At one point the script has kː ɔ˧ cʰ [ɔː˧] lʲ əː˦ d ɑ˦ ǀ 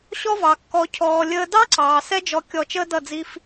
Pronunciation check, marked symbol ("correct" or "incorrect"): correct